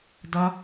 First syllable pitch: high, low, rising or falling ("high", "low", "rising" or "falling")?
high